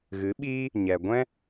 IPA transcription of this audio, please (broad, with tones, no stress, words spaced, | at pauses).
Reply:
ɣɨ˨˦ɓiː˦ | ɲɛ˨ ɡʷɛ̃˦